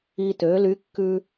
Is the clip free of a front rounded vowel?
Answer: no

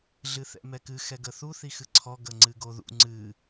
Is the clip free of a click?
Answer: no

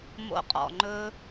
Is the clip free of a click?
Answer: no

